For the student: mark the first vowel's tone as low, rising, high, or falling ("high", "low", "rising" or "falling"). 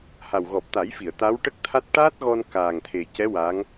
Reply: low